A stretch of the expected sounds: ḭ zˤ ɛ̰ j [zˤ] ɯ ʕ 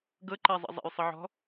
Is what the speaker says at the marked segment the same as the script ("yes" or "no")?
no